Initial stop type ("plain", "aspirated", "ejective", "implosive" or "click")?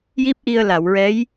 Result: plain